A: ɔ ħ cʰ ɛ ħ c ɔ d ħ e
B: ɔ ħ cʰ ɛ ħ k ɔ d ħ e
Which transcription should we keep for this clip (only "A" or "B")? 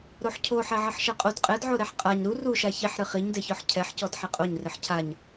A